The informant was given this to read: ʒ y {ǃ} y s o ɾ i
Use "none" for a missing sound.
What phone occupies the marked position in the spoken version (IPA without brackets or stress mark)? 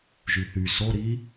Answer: θ